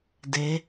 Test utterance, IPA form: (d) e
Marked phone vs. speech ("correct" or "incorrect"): correct